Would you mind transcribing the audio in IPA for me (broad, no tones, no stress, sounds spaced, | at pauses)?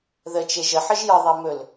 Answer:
ð ə t͡ʃ e ʒ ə ħ ə ʒ j ə ðˤ ɛ m ɵ l